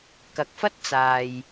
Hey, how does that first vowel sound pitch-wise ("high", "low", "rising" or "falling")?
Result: rising